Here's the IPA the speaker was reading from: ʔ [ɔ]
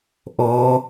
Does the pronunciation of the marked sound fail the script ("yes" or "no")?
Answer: no